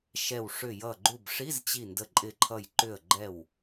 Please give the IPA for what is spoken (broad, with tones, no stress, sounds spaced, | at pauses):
ʃ ɛ˧˩ w ʂ ʏ˧˩ j ʌ˧˩ ɡ͡ǃ u˧˩ b ʂ i˧˥˧ z t͡ɕ i˧˩ n d ə˧˩ ǃʼ ɪ˧˩ ǃʰ ʌ˧˩ j ǃ ʏ˧˩ ə̯ ɡ͡ǃ ɛ˧˩ w